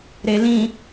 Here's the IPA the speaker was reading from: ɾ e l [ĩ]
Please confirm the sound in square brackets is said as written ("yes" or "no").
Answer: yes